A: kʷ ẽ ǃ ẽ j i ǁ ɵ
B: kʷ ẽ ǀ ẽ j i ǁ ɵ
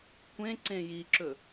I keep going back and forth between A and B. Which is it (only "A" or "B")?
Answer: B